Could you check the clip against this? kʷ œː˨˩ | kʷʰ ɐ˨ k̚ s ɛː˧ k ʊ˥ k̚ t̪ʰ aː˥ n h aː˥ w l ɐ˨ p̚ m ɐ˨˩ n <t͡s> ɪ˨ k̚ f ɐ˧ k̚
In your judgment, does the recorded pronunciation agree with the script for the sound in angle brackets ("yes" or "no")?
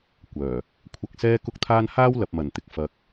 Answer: no